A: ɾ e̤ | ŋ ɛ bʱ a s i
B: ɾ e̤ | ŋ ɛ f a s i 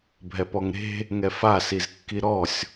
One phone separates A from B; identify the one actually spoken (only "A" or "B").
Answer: B